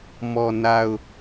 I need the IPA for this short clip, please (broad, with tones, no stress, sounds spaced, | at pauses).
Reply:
m ɔ˨ n a˨ ʊ̯